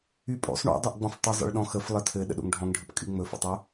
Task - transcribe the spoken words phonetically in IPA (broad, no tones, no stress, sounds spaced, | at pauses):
y pʼ o̰ sˤ ɳ o̰ dˤ o ʔ ɡ͡b ɔ̃ f tˤ ʏ zˤ ə̰ ɭ ɗ ɔ̃ x ə f lˠ ə tʰ ɘ ɗ ə̰ ɗ o̰ ŋ ɖʱ ɔ̃ ŋ ɖʱ ɘ p kʼ y ŋ͡m ɵ f ə̰ tˤ o